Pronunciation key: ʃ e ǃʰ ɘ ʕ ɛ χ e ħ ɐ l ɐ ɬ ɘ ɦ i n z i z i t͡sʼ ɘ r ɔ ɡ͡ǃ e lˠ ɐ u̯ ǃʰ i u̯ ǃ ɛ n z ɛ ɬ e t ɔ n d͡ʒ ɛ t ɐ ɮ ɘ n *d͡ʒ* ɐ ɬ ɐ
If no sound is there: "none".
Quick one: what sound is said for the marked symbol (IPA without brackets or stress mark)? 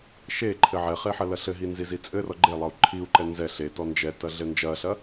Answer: d͡ʒ